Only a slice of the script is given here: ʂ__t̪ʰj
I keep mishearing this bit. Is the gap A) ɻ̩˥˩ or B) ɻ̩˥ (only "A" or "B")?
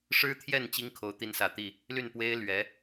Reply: B